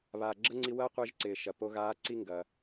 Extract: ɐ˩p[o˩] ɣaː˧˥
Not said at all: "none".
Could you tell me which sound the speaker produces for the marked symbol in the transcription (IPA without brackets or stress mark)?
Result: o˧